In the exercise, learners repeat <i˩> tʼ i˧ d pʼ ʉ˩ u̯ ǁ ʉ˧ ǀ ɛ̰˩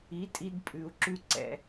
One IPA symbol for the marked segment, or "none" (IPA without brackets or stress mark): i˩˥